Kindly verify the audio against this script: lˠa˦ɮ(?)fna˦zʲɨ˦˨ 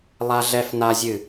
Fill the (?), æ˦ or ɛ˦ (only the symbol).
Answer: ɛ˦